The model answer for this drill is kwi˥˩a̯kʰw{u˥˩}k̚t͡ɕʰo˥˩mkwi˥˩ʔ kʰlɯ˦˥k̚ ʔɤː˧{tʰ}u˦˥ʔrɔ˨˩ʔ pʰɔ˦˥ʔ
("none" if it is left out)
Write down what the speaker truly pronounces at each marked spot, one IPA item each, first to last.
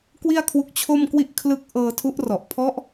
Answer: u˦˥, tʰ

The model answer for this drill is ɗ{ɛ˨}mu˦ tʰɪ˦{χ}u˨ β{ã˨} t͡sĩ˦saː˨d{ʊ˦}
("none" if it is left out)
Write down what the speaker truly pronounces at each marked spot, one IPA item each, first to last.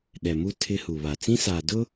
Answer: ɛ˨, h, a˨, ʊ˦

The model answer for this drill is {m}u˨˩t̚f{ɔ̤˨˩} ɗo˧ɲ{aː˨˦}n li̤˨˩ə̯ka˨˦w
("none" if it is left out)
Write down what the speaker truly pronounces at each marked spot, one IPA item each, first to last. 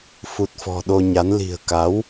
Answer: f, ɔ̤˨˩, a˨˦

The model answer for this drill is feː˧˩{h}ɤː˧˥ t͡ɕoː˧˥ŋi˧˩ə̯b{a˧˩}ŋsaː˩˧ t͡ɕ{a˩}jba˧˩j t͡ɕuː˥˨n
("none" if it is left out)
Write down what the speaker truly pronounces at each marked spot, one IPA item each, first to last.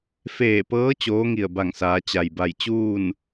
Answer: p, a˧˩, a˩

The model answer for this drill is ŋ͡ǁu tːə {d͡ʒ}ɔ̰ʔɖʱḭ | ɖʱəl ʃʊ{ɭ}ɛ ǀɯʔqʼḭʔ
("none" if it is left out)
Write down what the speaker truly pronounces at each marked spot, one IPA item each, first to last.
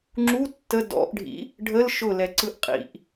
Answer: d, l

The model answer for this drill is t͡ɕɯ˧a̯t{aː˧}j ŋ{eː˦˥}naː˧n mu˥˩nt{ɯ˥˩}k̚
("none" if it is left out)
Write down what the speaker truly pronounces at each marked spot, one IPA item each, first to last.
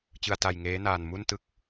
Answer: a˧, eː˦˥, ɯ˥˩

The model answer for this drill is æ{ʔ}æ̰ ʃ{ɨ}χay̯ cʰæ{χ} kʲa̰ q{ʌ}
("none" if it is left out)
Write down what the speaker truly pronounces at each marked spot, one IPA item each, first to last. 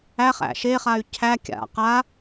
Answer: χ, e, none, a

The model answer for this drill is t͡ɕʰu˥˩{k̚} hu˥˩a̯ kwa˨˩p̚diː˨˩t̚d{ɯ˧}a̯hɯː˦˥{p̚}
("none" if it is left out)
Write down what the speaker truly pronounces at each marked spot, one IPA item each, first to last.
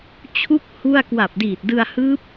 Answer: k̚, ɯ˧, p̚

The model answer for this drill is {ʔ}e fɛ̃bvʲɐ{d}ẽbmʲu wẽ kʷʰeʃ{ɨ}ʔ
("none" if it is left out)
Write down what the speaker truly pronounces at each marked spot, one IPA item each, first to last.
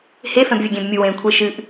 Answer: h, ɡʲ, ɨ

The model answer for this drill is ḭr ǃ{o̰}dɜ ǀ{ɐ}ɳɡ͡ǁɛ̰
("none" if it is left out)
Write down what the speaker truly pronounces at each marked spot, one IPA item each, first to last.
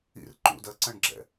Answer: ṵ, ɐ̃

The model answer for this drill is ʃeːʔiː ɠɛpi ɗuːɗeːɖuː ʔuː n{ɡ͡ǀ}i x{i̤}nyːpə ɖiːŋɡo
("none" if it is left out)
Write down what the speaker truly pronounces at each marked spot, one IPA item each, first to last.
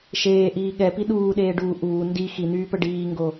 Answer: d, i

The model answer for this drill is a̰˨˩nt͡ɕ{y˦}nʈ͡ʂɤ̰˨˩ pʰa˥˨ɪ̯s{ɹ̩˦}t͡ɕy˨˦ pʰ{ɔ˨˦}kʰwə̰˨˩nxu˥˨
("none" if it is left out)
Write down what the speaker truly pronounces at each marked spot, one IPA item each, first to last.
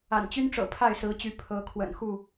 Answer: y˦, ɹ̩˨˦, ɤ˨˦

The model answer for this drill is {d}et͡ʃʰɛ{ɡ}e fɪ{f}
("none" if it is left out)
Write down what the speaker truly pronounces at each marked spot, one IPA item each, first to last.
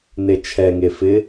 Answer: n, ŋ, none

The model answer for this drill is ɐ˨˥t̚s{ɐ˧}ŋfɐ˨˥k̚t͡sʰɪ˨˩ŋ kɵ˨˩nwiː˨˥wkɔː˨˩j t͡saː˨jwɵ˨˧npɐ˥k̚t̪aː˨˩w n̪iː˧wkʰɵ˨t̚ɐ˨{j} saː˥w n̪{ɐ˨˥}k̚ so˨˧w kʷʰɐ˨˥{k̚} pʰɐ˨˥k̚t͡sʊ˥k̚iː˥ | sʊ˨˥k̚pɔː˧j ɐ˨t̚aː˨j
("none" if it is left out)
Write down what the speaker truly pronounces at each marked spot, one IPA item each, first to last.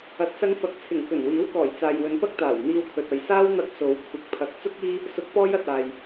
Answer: ɐ˧, j, ɐ˧, k̚

